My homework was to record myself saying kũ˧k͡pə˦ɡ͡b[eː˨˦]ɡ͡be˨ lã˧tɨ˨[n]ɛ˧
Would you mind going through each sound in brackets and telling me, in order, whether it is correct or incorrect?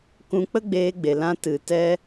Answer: incorrect, incorrect

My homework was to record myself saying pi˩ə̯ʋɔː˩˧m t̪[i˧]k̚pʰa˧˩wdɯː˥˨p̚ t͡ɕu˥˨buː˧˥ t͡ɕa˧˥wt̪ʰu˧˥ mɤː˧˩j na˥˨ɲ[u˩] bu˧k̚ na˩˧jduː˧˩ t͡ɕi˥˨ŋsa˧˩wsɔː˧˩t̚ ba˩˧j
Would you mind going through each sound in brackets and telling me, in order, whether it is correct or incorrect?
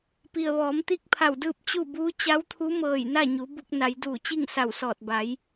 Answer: incorrect, incorrect

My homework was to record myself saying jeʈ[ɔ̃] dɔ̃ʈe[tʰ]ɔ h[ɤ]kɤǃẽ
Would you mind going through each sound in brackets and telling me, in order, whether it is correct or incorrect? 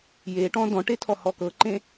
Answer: correct, correct, incorrect

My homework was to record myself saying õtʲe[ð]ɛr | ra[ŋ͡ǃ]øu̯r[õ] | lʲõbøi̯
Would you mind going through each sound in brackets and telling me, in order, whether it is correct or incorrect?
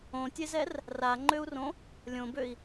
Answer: incorrect, correct, correct

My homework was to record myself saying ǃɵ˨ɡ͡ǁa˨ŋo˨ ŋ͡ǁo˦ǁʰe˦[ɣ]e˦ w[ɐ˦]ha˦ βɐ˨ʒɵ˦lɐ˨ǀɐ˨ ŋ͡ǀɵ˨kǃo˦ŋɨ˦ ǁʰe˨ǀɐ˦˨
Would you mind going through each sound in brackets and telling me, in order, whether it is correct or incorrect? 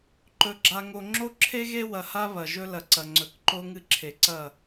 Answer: correct, incorrect

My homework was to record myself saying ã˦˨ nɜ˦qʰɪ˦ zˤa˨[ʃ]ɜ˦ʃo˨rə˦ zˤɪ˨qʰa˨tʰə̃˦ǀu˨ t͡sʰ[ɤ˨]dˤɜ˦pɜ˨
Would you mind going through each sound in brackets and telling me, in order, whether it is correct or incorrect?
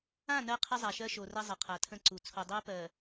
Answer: correct, incorrect

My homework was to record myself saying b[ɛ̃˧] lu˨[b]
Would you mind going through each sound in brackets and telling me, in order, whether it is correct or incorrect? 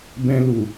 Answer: correct, incorrect

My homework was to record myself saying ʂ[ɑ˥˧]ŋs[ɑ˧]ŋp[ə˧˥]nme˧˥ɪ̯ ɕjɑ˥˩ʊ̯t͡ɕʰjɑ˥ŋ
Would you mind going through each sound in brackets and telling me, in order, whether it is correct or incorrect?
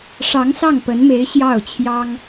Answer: incorrect, incorrect, correct

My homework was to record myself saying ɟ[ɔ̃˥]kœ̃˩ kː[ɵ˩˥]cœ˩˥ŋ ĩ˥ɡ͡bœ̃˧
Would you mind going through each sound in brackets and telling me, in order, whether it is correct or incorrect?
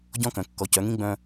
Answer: correct, incorrect

